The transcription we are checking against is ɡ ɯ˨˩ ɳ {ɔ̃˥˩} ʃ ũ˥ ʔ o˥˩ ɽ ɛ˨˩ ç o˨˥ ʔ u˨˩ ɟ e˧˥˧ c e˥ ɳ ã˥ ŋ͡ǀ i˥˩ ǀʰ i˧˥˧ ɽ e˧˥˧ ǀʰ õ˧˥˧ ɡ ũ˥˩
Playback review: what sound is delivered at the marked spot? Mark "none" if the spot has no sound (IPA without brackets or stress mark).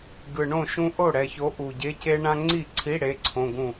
õ˥˩